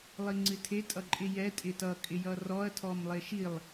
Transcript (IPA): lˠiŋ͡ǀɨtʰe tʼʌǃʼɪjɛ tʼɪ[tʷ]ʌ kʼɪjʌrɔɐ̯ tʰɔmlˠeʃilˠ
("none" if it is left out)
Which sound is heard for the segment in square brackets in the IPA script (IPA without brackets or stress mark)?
t